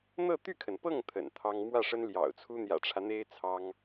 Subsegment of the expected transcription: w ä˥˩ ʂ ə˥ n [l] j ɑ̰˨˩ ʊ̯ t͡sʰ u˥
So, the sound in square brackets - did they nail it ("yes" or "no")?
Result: yes